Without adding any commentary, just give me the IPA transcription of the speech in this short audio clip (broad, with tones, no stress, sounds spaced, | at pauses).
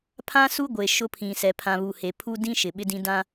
pʰ ã˦ s u˦ ɡʷ e˨ ʃ ʊ˦ pʰ ĩ˨ s ɛ˨ pʰ ã˨ β u˨ h e˨ pʰ u˦ d ĩ˦ ʃ ɪ˨ ɓ ɪ˦ d ĩ˦ d ã˦